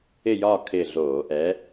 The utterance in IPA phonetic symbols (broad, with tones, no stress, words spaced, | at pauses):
ɪ˦˨jɒː˦˨ kʰɪː˦˨ɮoː˧˩˧ ʔɛː˨˥